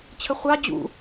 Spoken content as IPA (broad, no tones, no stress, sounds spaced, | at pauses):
t͡ɕʰ ə χʷ ɑ d͡ʑ ṵ